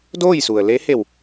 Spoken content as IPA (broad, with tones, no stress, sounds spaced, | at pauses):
d oː˥˨ j s u˩ ə̯ l e˧˥ h e˧˩ w